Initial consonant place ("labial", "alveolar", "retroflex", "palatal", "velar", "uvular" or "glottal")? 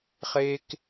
uvular